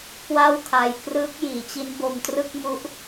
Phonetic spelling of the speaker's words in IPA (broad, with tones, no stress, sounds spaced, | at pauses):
k w a˥˩ w kʰ a˧ j k r ɯː˦˥ k̚ j iː˩˦ t͡ɕ i˦˥ n b o˧ m t r ɯ˥˩ k̚ m u˦˥ ʔ